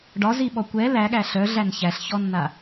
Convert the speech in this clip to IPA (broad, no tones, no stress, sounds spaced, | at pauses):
ɖ ɒ z i ɓ ɔ kʷ ɛ l æ ɠ æ ɬ œ ɮ æ n ç æ ɬ ç ɔ nː a